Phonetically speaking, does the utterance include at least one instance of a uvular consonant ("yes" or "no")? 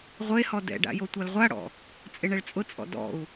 yes